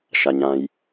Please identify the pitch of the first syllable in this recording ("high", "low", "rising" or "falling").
low